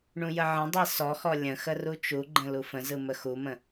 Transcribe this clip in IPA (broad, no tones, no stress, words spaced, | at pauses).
ɳũjəʕə̃dˤi sɔxɔ lʲə̃ xərut͡ʃuɡ͡ǃə̃ lufə̃zɯ məxumə̃